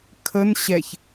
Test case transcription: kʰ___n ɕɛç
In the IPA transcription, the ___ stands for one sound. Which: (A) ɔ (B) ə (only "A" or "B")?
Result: B